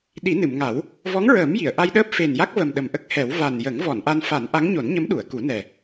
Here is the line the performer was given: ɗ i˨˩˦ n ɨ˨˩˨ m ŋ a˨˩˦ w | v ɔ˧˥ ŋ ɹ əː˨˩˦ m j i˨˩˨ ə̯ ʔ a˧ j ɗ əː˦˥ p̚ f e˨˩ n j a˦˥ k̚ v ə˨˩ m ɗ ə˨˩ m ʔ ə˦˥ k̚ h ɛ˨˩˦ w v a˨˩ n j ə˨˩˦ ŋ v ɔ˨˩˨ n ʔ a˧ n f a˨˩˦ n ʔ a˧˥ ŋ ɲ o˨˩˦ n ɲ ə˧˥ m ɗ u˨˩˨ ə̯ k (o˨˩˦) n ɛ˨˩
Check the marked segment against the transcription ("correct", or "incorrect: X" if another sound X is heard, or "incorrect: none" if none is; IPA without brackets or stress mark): incorrect: u˨˩˦